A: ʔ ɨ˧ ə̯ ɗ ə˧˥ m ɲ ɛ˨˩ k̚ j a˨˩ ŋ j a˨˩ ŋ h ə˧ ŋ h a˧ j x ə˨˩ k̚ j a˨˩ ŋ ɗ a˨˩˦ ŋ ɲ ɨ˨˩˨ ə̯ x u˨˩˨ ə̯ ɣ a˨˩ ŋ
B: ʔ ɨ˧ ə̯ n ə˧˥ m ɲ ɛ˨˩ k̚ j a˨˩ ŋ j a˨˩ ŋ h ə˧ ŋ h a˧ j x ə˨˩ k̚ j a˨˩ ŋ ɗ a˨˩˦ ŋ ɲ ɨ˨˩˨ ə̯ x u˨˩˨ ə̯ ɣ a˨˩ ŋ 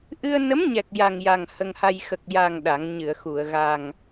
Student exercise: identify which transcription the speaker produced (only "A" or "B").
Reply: B